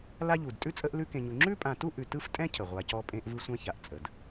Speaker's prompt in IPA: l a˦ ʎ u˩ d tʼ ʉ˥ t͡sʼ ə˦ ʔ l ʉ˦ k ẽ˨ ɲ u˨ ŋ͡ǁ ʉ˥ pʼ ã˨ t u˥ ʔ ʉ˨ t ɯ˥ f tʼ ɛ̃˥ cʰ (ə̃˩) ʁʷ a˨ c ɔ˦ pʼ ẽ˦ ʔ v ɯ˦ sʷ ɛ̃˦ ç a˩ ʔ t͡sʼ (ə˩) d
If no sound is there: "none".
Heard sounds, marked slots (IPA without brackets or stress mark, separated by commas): ə˩, ə˩